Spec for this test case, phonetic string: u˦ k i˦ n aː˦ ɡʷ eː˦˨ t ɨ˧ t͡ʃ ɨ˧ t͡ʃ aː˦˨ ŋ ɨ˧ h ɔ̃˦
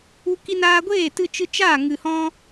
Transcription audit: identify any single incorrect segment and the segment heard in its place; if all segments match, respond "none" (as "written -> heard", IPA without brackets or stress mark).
none